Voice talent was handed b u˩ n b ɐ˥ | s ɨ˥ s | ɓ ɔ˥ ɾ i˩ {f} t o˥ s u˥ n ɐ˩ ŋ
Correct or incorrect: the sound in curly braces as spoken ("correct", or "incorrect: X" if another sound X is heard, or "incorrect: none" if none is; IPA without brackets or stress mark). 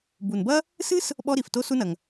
correct